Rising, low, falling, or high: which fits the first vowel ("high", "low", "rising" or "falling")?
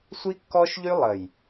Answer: high